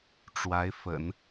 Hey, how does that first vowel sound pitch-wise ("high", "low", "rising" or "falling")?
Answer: rising